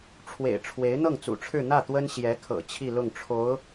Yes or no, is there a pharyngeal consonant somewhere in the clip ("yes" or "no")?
no